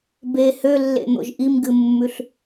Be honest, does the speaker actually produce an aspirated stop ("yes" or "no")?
no